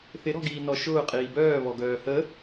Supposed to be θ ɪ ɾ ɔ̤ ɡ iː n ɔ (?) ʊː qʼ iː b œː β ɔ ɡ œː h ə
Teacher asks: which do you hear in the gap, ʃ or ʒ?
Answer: ʃ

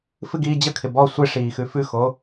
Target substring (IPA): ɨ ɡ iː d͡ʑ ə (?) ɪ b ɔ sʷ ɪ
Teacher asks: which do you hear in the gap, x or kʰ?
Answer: kʰ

